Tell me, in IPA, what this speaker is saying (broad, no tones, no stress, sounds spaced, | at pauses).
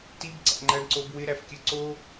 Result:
t i b ǀ æ̰ ŋ͡ǃ æ ɳ ǀ o b w ɪ ɾ æ f kʲ ɨ ǀ o